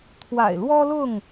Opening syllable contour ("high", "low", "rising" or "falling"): low